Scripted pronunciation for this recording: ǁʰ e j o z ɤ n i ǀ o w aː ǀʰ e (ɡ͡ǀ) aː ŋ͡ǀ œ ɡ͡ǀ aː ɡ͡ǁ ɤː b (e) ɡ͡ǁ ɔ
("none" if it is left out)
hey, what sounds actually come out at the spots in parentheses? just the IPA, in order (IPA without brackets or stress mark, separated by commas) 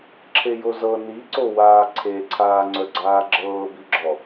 ǀʰ, i